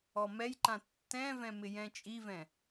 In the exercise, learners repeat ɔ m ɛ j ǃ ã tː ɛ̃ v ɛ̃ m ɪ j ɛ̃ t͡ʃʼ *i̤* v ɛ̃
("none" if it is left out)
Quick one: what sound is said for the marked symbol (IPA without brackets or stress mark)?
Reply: i